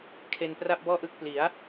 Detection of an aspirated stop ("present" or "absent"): present